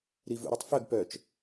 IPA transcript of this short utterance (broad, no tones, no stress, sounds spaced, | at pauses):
ɾ i v ṵ ɾ ʌ tˤ f œ ɡ p œ t͡ʃ